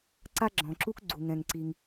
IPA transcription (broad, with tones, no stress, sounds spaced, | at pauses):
ǀ a˥ ɡ͡ǁ ɔ̃˩ ǁ u˥ k ɡ͡ǀ u˩ ŋ ɛ̃˩ ŋ ǀ i˩ ŋ